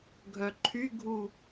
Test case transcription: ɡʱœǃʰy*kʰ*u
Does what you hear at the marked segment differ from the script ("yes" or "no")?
yes